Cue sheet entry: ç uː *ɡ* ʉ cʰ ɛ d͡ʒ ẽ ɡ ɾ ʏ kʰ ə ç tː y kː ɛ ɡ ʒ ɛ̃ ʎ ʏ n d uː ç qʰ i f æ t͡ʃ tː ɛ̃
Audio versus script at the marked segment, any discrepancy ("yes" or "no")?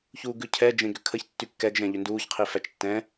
no